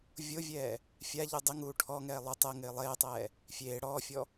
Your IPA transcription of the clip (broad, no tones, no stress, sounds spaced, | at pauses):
vʲ o vʲ ɛː | fʲ a ʎ u dˤ ɪ ŋ uː ʈʰ ɔ ŋ ɛː lˠ ʊ tˤ ɛ ŋ ɪː lˠ eː tˤ ɛː | fʲ eː ɽ ɔː fʲ ɔ